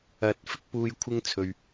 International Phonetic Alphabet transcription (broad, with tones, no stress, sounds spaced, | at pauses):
ɐ˨˥ t̚ f ɪ˥ k̚ p uː˧ j kʷʰ ɪ˥ ŋ t͡sʰ ɵ˨ ɥ